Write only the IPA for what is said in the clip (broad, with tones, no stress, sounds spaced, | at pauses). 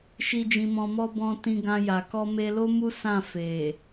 ʃ i˨ d͡ʒ ĩ˨ m ɔ̃˨ m ɔ˧ b ɔ̃˨ t ĩ˧ ɡ ã˧ j a˨ k ɔ˧ m e˧ l o˦ m u˦ s ã˦˨ f e˨